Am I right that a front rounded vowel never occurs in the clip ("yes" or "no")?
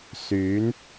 no